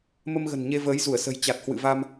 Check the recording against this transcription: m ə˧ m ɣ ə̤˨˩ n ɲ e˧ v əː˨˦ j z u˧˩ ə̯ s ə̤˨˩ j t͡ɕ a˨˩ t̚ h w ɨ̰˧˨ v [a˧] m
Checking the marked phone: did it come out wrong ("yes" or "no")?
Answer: no